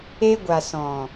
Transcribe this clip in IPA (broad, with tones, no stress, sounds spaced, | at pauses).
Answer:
e˧ ɡʷ a˨ s ɔ̃˨